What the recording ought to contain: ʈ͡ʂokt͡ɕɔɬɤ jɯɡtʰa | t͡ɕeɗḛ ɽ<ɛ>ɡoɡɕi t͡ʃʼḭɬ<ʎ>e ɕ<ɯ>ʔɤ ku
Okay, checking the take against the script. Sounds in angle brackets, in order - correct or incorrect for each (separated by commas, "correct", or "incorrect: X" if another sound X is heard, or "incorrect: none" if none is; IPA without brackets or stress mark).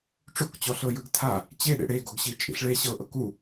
incorrect: e, incorrect: ɭ, incorrect: ɤ